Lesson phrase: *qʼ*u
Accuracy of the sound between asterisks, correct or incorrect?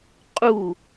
correct